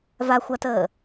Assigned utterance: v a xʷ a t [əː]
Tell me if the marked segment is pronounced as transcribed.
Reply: yes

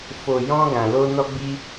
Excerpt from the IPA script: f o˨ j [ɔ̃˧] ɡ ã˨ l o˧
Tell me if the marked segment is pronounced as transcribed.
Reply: yes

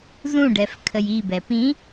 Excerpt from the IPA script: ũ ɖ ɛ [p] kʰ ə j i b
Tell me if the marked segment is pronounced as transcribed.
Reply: no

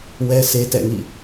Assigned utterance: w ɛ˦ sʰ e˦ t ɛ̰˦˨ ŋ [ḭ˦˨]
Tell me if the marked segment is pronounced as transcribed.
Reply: yes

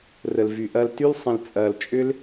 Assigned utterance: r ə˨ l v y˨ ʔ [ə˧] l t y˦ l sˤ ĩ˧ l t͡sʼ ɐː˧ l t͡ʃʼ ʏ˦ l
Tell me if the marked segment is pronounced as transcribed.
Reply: no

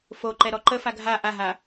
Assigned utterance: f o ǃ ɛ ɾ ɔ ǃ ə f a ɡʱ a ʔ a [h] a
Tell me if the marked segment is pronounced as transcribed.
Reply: no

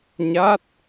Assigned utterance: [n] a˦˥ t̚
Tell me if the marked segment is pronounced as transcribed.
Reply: no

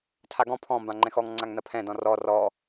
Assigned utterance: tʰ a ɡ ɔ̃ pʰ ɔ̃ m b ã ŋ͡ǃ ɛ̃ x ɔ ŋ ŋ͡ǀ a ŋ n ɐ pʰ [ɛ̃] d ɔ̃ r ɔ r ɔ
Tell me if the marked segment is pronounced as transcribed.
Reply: yes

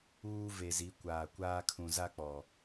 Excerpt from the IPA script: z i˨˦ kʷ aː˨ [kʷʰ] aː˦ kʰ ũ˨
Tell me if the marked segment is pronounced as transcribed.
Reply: no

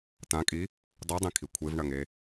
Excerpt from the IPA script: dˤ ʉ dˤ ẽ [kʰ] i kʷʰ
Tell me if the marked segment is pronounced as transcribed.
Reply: yes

